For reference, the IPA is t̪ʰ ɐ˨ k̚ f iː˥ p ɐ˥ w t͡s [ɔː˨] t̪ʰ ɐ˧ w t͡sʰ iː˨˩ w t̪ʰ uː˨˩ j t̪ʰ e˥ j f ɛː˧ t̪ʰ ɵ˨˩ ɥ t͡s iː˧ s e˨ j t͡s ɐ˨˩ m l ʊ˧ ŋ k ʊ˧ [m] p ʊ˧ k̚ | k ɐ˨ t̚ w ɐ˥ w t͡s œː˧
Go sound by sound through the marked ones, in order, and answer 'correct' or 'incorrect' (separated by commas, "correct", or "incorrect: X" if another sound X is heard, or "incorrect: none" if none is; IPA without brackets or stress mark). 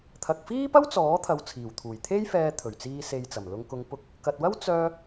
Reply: incorrect: ɔː˨˥, incorrect: ŋ